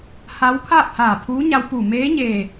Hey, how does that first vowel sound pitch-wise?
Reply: rising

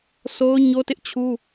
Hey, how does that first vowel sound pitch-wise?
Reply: high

